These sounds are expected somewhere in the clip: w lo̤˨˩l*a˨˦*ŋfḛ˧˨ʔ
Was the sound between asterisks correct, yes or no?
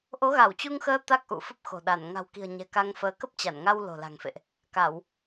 no